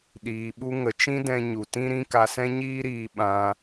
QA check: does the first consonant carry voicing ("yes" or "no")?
yes